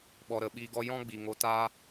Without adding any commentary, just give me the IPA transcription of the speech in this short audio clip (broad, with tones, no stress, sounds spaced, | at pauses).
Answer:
ɓ ɔ˨ ɾ ə˨ ɓ iː˧ ɡ ɔ˦ j ɔ̃˦ ɡ͡b i˨ ŋ o˧ t aː˦